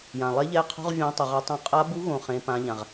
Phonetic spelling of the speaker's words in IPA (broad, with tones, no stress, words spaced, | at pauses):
jã˨ lˠe˧˥ʎɛ˧˥qʰo̤˧˥˧ʁ vʲã˧˥tˤu˨ʁa˧˥ tˤõ˧˥ qʼa˧˥bu˧˥ɣõ˨ χẽ˧˥pã˧˥ʎã˨ʁ